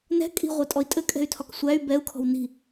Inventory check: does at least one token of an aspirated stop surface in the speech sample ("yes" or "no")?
yes